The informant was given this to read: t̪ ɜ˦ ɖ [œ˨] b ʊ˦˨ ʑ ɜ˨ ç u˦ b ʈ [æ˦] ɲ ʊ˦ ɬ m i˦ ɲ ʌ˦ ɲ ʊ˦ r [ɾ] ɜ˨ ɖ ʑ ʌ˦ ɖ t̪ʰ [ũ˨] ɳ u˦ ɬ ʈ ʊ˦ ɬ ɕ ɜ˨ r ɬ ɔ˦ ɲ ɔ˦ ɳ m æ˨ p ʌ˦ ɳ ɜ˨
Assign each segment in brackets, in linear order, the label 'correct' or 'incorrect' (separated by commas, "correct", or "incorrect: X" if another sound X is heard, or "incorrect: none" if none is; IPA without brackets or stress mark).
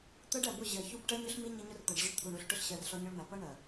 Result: incorrect: æ˨, incorrect: ɜ˦, incorrect: t̪, incorrect: u˨